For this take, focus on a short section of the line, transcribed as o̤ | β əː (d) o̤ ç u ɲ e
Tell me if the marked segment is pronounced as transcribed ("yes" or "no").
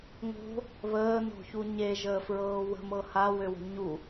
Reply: no